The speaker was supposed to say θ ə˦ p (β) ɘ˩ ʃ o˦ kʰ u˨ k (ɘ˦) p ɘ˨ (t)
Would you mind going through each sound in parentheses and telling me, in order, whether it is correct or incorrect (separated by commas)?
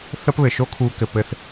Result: correct, incorrect, incorrect